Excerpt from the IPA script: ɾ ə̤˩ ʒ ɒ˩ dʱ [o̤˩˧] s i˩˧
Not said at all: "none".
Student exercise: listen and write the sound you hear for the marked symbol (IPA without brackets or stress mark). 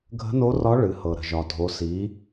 o˩˧